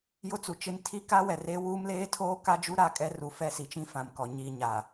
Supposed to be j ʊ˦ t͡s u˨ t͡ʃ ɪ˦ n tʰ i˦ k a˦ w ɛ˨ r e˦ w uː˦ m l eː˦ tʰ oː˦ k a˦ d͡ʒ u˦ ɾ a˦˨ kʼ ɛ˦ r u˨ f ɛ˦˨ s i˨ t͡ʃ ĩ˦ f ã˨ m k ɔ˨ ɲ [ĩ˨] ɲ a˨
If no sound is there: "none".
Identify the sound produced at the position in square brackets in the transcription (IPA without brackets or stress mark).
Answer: i˨